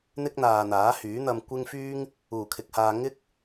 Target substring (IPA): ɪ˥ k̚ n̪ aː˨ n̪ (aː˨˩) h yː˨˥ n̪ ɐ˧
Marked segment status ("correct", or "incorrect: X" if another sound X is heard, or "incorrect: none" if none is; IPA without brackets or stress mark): incorrect: aː˨˥